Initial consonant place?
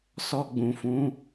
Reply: alveolar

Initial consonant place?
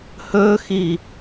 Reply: glottal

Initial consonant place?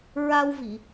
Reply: alveolar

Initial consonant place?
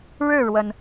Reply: retroflex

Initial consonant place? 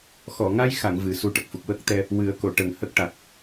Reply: velar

